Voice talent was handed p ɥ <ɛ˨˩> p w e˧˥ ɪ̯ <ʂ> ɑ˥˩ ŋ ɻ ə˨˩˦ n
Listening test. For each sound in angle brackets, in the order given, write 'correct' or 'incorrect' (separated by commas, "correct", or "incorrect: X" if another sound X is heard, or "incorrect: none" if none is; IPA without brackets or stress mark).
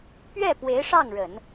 incorrect: ɛ˥˩, correct